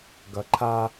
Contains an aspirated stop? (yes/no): yes